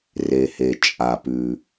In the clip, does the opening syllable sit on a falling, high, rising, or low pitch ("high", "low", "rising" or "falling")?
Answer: low